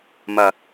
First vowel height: low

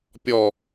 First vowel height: mid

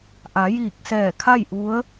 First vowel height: low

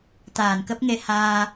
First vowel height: low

